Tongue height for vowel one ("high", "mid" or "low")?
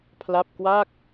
low